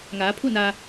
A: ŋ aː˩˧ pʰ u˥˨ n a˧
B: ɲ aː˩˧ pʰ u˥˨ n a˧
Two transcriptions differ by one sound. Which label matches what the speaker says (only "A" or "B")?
A